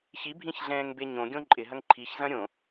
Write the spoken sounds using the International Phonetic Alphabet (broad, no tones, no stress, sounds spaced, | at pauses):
ç i bʱ ĩ ç ɮ ɛ̃ː ŋ b e ɲ õ ɡʲ õ ǃʼ ɪ ɦ ɐ ŋ ǃʰ i ç z ɐ̃ ɾʲ õ